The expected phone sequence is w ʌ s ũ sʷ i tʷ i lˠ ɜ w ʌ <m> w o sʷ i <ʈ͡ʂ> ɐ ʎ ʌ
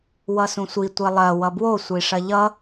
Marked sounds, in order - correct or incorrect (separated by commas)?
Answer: incorrect, incorrect